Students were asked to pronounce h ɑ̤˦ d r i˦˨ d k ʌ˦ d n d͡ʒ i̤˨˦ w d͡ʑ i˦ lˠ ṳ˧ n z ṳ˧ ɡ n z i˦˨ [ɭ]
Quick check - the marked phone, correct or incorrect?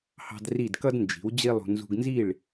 correct